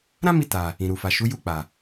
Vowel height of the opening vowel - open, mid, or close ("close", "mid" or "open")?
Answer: open